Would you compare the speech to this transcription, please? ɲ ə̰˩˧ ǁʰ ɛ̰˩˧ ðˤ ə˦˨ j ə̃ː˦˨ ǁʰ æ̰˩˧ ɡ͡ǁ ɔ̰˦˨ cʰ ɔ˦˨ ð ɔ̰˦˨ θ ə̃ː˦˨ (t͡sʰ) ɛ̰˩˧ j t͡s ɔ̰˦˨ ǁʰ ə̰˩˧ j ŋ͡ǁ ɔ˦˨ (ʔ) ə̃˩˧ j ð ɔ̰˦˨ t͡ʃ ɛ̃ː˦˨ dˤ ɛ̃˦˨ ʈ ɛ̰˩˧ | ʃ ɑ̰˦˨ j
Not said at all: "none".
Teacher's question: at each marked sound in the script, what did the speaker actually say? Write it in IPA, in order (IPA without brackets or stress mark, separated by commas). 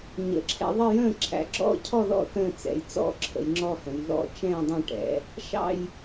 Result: t͡s, h